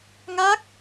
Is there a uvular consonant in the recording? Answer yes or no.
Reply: no